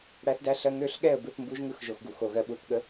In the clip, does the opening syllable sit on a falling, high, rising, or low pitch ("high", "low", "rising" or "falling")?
rising